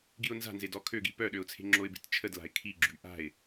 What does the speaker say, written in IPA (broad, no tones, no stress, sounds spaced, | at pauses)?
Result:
ɡ i ʊ̯ n z a̤ n z e d ɔ kʰ ø ɡ i p œ ɗ ø ʊ̯ t͡sʰ e̤ ŋ͡ǁ o ɪ̯ b e̤ t t͡ʃʰ ə d l a̤ ɪ̯ kʰ i ɡ͡ǁ y ʔ a̤ ɪ̯